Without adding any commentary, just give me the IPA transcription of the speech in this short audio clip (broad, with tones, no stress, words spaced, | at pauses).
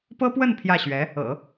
pɤ˥pwə˥˧n pʰjä˥˩ɕɥɛ˧˥ | ɤ̰˨˩˦